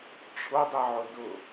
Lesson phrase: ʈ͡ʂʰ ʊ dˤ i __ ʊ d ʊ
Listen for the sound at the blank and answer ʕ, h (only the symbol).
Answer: ʕ